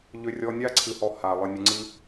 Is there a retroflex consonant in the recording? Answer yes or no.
no